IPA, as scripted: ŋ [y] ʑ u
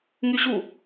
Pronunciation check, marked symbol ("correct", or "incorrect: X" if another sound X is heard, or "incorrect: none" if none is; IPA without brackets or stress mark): correct